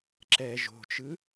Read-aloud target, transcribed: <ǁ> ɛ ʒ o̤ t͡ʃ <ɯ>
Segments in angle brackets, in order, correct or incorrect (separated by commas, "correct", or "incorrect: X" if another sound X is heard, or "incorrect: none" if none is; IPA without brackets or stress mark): correct, correct